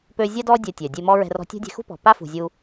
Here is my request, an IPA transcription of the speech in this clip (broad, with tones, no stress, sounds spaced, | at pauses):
p ø˧ zʲ a˦ d ɔ˦ dʲ ɜ˧ tʲ œ˨ dʲ e˧ m ɔ˦ ɹ ɛ̤˧ r ɔ̤˧ tʲ o̤˦ dʲ ɛ̤˧ x ṳ˦ p ɔ̤˨ p a˦ f ṳ˨ zʲ u˧